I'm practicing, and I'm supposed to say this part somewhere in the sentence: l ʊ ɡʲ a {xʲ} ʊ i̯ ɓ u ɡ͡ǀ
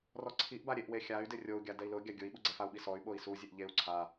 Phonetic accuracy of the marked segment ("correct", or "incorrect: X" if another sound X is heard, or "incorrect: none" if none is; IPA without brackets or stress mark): incorrect: ɡʲ